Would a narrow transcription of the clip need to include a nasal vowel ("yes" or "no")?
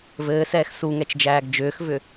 no